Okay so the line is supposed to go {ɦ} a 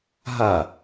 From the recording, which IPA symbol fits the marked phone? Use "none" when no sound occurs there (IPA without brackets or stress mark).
ɦ